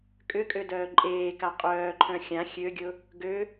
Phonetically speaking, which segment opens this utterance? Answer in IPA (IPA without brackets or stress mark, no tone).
kʼ